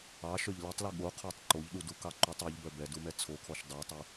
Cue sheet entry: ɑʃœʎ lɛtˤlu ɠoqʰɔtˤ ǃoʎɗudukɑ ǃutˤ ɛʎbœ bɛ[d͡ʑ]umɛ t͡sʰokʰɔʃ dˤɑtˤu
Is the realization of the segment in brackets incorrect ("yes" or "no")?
yes